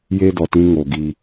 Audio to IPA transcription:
j e˦ d ɔ˨ t ĩ˦ ŋ o˨ ɡ i˦

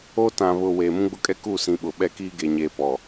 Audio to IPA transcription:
oː˦ t ã˨ β ʊ˨ w eː˨ m ũ˦ ɡ͡b ʊ˦ kʼ ɛ˦ k u˦˨ s ĩ˨ ɓ ʊ˨ ɓ ɛ˦ k iː˦ ɡ e˨ ɲ eː˨ p ɔ˨

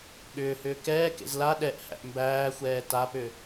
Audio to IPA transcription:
ɠ ʏː h ʏː k ɛː k ḛ z l a ɗ ɛ ʔ h æ̰ ʔ m b æː xʷ ɛː t a p ʏ

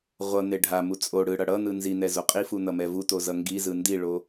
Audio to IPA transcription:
ʁʷ ʌ n̪ e ɖʱ a m u t͡sʼ o ɽ ɯ ɽ ʌ ɽ ʌ n̪ ɯ n z i n̪ ɛ z o qʼ i f u n̪ ʌ m ɛ v u t o z ʌ ŋ ɡ i z ɯ n d i ɭ o

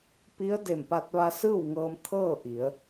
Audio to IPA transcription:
p i˧˥ ə̯ d e˧˩ m p a˧ t̚ ʋ a˧ s ɯː˥˨ w ŋ ɤː˧ m t̪ʰ ɤː˥˨ ʔ i˩˧ ə̯

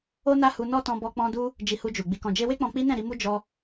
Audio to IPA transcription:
o˦ n a˦ h u˧ n ɔ˦ t ɔ̃˧ b ɔ˧ k͡p ɔ̃˦ d u˧ | d͡ʒ i˧ h u˧ d͡ʒ u˨ ɡ͡b i˨ k ɔ̃˨ d͡ʒ e˧ w e˦ k͡p ɔ̃˧ k͡p i˦ n ɛ̃˦˨ ɾ i˧ m u˦ d͡ʒ ɔ˧

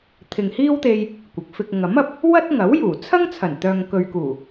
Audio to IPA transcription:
t̪ʰ ɪ˨ ŋ h iː˥ w t̪ e˧ j | kʷ ɪ˨˥ k̚ f ɪ˧ k̚ ŋ ɐ˨˥ m ɐ˨ p̚ | w ɐ˥ t̚ ŋ ɐ˨˥ w j uː˨˩ t͡sʰ ɐ˥ ŋ t͡sʰ ɐ˨˩ n t̪ œː˨ ŋ k ɵ˨ ɥ k uː˨˩

